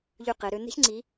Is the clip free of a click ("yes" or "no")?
no